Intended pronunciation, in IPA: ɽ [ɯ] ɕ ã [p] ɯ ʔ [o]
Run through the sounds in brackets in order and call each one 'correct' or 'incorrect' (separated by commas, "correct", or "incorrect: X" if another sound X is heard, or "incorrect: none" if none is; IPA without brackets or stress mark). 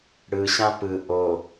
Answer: correct, correct, correct